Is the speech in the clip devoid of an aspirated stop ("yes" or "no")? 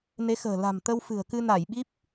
yes